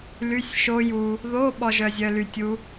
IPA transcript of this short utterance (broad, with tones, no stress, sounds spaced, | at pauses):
l y˧˥˧ sʲ ʃ o˦˥ j u˧ | ð o˧˥˧ ɓ ɔ˧ ʒ œ˧ zʲ œ˧ l y˧ tʲ u˦˥